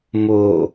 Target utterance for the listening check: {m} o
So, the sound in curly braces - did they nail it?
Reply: yes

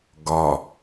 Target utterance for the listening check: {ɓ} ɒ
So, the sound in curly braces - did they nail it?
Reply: no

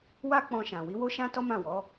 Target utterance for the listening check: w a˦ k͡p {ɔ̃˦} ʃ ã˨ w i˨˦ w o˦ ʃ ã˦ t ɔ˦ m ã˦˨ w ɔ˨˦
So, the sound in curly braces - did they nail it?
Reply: no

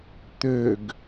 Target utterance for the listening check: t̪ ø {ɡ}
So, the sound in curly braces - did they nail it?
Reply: yes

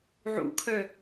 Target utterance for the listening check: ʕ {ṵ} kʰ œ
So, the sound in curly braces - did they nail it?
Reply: yes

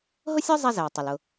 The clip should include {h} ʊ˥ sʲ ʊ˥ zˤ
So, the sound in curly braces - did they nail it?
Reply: no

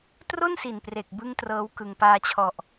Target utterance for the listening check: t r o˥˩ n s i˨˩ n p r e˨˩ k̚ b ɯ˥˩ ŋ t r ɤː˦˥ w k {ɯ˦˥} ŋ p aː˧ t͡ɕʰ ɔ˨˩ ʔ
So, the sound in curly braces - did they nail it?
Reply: no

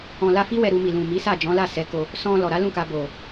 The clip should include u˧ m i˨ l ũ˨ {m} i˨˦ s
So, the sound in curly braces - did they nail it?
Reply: yes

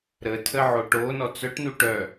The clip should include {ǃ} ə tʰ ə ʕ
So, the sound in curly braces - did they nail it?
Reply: no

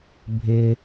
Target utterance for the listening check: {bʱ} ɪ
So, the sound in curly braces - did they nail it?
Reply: yes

